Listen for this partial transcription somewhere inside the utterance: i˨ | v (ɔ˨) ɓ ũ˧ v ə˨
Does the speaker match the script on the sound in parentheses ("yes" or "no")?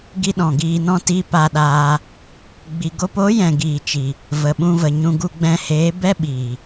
no